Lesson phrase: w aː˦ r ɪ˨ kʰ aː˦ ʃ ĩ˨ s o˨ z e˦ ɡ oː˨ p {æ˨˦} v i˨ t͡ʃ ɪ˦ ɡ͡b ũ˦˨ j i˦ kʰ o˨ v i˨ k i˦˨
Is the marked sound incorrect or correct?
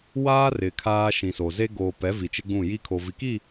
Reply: incorrect